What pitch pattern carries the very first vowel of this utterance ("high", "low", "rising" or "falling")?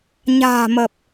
low